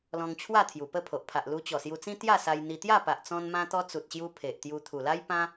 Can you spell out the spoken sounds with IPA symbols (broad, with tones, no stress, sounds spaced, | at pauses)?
l ɔ̃˧ ŋ t͡ɕʰ w a˥˧ t̪ʰ j u˨˩ p ə˥˧ pʰ o˨ ʔ pʰ a˨ ʔ l u˧ t͡ɕ ɔ˨˩ s j u˧ t͡s ĩ˦ t̪ j a˥˧ s a˧ j n̪ i˧ t̪ j a˥˧ p a˨ ʔ t͡s ɔ̃˦ n m ã˦ t̪ ɔ˦ t͡s u˨ t̚ ɕ j u˧ pʰ e˨ ʔ t̪ j u˧ t̪ʰ u˨˩ l a˦ j p ã˦